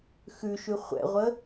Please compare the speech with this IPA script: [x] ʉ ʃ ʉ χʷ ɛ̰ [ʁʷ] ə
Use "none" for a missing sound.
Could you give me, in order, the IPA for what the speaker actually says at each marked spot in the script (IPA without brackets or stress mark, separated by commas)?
x, ʁʷ